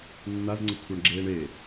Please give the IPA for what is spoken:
nː a z ŋ͡ǀ ə kʷʰ ɜ ɳ ɡ͡ǁ eː ɳ e

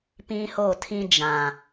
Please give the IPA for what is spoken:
p ĩ˦ h o˦˨ tʰ ĩ˦ d͡ʒ ã˨

